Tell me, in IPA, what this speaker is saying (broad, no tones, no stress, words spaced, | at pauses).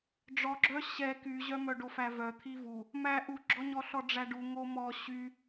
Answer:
ɖ͡ʐɔɡ͡ǁœ ɕɛ kyʑœmœ ɖofævœ t̪ʰivu | mæ ʔuɡ͡ǁɔɲɔɬɔ ɖ͡ʐæɖu ŋomɔ ɕy